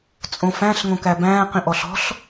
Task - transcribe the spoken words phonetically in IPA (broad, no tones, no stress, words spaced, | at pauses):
t͡sʼõfæ̃ɬ ŋõkæbæ̃ː qĩʔɔɬɔ̤ɬ